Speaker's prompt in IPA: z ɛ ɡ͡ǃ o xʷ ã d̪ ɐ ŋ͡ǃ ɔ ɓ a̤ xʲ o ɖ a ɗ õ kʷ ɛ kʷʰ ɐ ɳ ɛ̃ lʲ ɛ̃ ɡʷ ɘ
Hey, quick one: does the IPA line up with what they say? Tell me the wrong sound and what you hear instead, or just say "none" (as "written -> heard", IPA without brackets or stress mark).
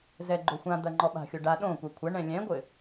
none